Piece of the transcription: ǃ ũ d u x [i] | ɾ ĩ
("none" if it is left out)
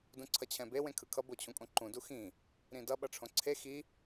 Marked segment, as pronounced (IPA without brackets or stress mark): ĩ